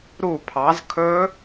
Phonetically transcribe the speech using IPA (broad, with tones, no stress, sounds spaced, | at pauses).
ɾ u˦˨ pʰ ɑ˨˦ z kʰ ɵ˦˥